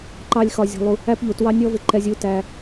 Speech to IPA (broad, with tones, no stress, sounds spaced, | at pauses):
ǃ ɑ˦ lʲ x ɒ˧ zʲ ɔ̤˧ lˠ u˧ | æ˦ p ʎ u˨ t w ɑ˦ nʲ ɔ˦ v ɪ˧ ǃ ɛ˧ zʲ u˧ t æ˧